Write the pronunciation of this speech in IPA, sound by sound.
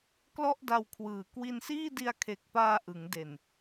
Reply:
k l ɔ˥˩ ʔ d a˧ w kʰ w ɯː˨˩ k w i˧ n s iː˥˩ d i˧ a̯ kʰ e˨˩ k̚ p aː˧ ʔ ɯ˩˦ ŋ d e˨˩ n

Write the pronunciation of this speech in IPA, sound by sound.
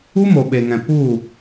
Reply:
u˦ m o˨ ɓ e˨ ŋ ɛ̃˨ p u˦˨

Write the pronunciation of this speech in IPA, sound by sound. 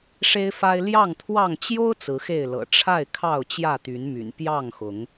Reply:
ʂ e˦ ɪ̯ f a˦ ɪ̯ l j ɑ˥˨ ŋ t̪ʰ w ɑ˥˨ ŋ t͡ɕ j o˦ ʊ̯ t͡s ɹ̩˨˦ x e˥˨ ɪ̯ l ɤ̰˨˩ ʈ͡ʂʰ a˥˨ ɪ̯ kʰ ɑ˥˨ ʊ̯ t͡ɕ j ä˥˨ t̪ y˨˦ n m y̰˨˩ n p j ɑ˥˨ ŋ x ʊ˨˦ ŋ

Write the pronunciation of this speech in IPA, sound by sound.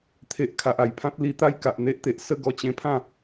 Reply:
t̪ʰ e˨ ʔ kʰ a˨ ʔ a˨˩ j pʰ ã˦ t̚ l i˧ t̪ a˦ j k a˨ ʔ n̪ e˦ ʔ t̪ e˨ ʔ s ə˥˧ ɡ ɔ˧ t͡ɕ ẽ˧ pʰ ã˥˧

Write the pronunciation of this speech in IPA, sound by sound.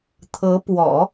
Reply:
t̪ʰ ɤ˧˥ p w ɔ̰˨˩˦

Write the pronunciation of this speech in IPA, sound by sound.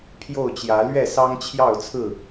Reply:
pʰ j o˥˨ ʊ̯ t͡ɕ j ä˨˦ l ɥ ɛ˥˨ s ɑ˦ ŋ t͡ɕʰ j ɑ˥˨ ʊ̯ t͡sʰ ɹ̩˥˨

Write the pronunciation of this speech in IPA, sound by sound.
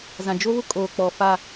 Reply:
z ã˨ d͡ʒ o˦ β ʊ˦ kʼ oː˨ k͡p ɔ˨ f a˦˨

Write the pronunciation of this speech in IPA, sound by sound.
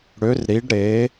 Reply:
ɽ ø˧˥ r ɾ i˧˥ ɖ ɾ e˧˥

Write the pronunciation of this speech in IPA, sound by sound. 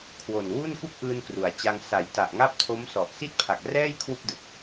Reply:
kʰ w o˨˩ n w u˥˩ n k u˥˩ k̚ ʔ ɯː˧ n k r u˩˦ a̯ t͡ɕ a˧ ŋ s a˩˦ j t a˨˩ ʔ ŋ a˥˩ p̚ tʰ o˦˥ m s ɔ˨˩ ʔ s i˥˩ t̚ pʰ a˨˩ k̚ r ɛː˥˩ j kʰ w u˥˩ k̚ d ɯ˨˩ k̚

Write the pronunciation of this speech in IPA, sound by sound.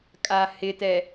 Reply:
kʼ a h ɪ t ɛ

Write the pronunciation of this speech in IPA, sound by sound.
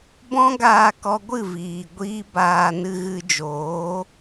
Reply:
b ɔ̃˦ ɡ aː˧ k ɔ˧ ɡʷ ɨ˦˨ v iː˨ ɡʷ iː˦ b aː˧ n ɨ˧ ɣ ɨ˧ d͡ʒ oː˨˦

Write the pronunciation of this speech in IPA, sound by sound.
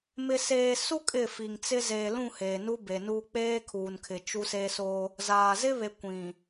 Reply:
m ɪ˨ s eː˨ s u˦ kʼ ɪ˦˨ f i˨ ŋ t͡s ɪ˦ z e˨ l ũ˦˨ h eː˨ n u˦ b e˨ n uː˦ k͡p eː˦ kʰ uː˨ n kʰ ɪ˨ t͡ʃ u˦ s e˦ s oː˦ | z aː˨ z ɪ˦ β e˨ kʷ ĩ˨

